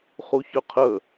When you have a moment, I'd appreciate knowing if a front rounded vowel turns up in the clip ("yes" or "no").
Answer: yes